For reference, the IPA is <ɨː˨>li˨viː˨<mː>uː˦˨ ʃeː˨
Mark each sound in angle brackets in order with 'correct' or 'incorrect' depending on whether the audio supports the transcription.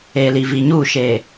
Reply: incorrect: eː˨, incorrect: ɲ

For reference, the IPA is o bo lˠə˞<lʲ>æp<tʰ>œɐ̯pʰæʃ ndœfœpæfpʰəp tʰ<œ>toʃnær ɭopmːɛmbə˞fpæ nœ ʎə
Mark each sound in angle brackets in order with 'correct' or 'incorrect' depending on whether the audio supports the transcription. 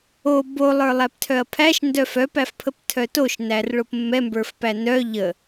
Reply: incorrect: lˠ, correct, correct

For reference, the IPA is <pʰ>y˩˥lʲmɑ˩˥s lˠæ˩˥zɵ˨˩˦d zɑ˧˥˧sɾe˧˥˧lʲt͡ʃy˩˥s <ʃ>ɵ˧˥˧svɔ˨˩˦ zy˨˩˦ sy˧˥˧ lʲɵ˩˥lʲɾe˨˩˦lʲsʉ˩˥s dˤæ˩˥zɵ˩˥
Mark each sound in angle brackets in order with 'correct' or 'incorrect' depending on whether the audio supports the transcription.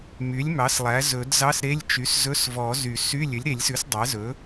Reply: incorrect: m, incorrect: z

